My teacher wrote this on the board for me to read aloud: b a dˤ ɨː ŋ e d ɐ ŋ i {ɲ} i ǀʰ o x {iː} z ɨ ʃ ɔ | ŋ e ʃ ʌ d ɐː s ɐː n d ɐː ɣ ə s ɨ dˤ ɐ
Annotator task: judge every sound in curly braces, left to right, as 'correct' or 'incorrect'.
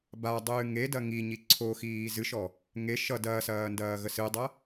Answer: correct, correct

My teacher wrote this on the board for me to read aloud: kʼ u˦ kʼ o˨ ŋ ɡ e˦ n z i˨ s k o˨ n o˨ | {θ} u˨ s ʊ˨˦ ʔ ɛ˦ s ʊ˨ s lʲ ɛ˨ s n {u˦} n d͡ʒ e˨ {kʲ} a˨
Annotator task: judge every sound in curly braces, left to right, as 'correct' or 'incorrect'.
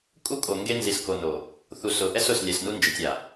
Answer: correct, correct, incorrect

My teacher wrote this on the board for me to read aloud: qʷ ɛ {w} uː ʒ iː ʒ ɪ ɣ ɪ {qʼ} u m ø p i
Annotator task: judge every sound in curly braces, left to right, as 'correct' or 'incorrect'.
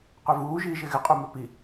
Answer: incorrect, correct

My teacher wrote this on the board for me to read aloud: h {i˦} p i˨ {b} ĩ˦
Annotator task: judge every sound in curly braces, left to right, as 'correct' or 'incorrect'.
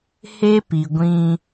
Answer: incorrect, incorrect

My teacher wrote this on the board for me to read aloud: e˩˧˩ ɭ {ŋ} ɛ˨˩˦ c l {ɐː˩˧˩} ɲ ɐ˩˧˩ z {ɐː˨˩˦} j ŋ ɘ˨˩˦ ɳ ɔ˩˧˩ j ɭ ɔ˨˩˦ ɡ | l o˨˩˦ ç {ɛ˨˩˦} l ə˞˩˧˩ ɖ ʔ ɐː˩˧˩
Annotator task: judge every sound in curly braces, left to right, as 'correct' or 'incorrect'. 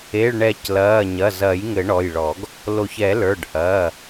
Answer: incorrect, correct, correct, correct

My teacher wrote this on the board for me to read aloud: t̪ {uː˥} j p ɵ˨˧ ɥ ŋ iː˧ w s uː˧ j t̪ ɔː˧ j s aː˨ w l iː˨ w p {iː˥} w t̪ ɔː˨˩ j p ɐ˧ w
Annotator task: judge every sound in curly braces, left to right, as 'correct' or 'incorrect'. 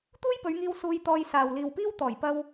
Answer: correct, correct

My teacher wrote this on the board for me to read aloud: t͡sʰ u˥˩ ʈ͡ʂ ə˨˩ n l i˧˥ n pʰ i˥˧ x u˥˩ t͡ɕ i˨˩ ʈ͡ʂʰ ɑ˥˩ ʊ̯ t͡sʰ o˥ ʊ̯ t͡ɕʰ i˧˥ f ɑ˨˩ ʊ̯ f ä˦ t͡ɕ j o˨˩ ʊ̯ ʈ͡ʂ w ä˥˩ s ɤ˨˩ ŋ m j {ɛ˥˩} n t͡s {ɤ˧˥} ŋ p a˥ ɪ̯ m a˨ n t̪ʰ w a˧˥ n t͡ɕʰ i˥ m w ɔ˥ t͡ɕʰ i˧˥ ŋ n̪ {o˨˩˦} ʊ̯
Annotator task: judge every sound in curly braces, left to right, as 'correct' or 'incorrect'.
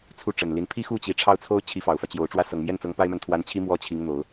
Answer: correct, correct, correct

